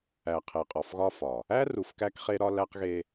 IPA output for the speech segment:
æ˨ qʰe˨qʼɒ˨fɣɒ˦fɒ˨ | æ˦ru˨f kæ˦kχe˦ɾɒ˦ læ˦qɣe˦

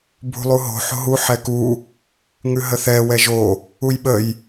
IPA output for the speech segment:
bʱṳlˠuɦo̤ ħo̤ɦu ħɛku | ŋʉɦəθɛ wɛʒo | ujɓəj

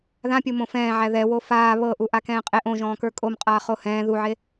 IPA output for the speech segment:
ðãpʲomõ fɛ̃ːʕæ ðɛwo faː βɤʔu ʔakɛ̃ːqʼeʔ õʒɔ̃ːkə˞ kʼomqʼaː χohɛ̃ː ðuʕe

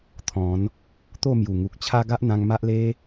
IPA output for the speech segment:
t̪ʰɔ̃˨˦n | t̪o˥˧mju˨˩ŋu˨k̚t͡ɕʰa˦ ɡa˦ʔn̪ã˧ŋ ma˦ʔle˦

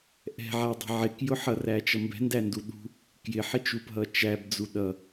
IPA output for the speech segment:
ʔɛ̤ʕædˤɛ̤ ʕɪkjʊ ħʌræt͡ʃʌmbɛ̤ ndænduɗṳ | kjɪħɪt͡ʃupɦʌ t͡ʃæbd͡zu ɗʌ

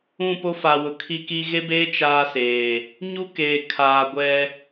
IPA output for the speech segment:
ũ˦˨po˦fa˨wʊ˨ kʰi˦ki˦ ɣe˦beː˦ t͡ʃaː˦seː˨ | ɲu˦keː˨ kʰaː˨ɡʷɛ˦

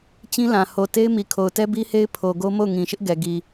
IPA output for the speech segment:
t͡ɕĩ˦lã˨ ho˨te˦ɪ̯ mi˨kʰo˨ʊ̯tɛ˦ bi˦he˦ɪ̯pʰo˨ ɡo˦ mo˦˨ʊ̯ŋĩ˨ʃɪ˦ʔɡɛ˨ ɡi˨

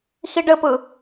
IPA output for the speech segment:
xiɖɘpɯ

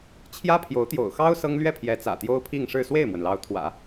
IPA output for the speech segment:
t͡ɕʰjä˥pʰjo˧˥ʊ̯t̪jo̰˨˩ʊ̯xɑ˥ʊ̯ sɤ˥ŋlɥɛ˥˩pʰjɛ˧˥ t͡sä̰˨˩t̪jo˥ʊ̯pʰi˥˧ŋʂɻ̩˥˧ swe˥˩ɪ̯mwə˩nlɑ˧˥ʊ̯t̪ʰwä̰˨˩˦

